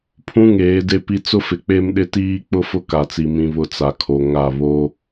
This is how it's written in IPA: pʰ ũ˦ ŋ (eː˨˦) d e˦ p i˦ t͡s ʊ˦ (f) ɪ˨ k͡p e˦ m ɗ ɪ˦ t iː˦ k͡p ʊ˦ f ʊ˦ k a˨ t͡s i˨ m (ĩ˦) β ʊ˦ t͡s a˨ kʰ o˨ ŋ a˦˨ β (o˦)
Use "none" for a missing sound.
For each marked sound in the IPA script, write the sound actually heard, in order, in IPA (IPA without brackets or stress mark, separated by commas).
eː˨˦, f, ĩ˦, o˦